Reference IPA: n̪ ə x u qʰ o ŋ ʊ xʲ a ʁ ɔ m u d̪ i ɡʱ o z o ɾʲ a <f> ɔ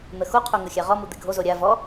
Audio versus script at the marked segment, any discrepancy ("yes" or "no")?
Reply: yes